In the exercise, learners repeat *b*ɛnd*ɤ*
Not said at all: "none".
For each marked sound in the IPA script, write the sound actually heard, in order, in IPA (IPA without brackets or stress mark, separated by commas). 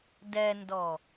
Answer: d, ɔ